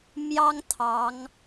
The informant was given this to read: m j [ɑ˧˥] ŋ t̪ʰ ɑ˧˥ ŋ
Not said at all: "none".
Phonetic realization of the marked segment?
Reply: ɑ˥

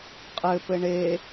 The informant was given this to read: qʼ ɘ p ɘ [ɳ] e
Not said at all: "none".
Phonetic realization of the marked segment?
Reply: ɳ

